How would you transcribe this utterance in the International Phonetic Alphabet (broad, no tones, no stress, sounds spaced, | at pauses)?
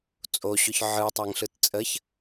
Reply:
t͡sʼ o ɕ ʏ ç ʕ ɯ tˤ a ŋ ɬ ɯ t t͡sʼ ə ç